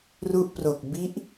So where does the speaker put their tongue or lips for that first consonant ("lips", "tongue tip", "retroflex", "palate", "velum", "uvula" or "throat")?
tongue tip